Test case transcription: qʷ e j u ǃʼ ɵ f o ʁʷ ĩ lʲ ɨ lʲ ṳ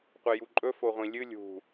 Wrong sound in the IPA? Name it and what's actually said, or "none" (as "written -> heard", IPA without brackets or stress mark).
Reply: none